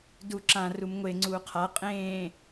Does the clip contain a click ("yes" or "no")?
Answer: yes